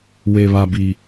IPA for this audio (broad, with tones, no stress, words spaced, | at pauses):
we˨βa˨bi˨